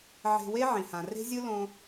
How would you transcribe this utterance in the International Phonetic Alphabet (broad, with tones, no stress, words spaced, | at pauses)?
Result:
ʕe̤˧we˦ ʕĩ˨hã˨ re̤˦zʲɯ˦ lõ˧